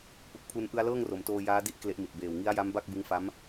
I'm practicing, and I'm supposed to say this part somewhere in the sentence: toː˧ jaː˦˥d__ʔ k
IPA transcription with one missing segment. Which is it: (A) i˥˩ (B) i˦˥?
A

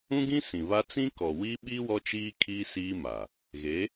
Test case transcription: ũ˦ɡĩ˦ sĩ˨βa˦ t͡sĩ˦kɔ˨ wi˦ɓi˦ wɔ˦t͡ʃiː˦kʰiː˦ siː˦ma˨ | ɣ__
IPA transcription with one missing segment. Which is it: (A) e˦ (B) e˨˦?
B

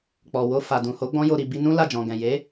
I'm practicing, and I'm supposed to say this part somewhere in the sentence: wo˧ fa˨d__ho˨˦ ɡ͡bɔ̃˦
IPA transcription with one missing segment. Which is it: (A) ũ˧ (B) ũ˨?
B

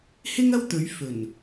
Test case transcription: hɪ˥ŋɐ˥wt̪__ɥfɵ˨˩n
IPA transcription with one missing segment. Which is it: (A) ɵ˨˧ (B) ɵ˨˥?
A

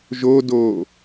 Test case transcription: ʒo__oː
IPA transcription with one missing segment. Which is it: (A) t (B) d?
B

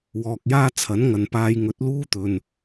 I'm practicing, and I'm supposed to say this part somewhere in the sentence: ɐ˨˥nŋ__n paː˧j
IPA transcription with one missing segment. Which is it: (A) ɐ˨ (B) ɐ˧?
A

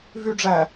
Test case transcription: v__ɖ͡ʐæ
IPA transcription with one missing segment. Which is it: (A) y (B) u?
A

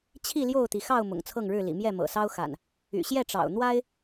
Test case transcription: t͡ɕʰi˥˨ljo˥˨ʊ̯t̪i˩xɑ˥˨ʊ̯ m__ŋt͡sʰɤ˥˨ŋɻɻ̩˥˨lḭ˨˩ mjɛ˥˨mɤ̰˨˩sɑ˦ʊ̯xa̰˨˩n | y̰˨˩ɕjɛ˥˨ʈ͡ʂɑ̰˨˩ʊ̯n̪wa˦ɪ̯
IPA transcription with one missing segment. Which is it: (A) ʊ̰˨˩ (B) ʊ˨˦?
A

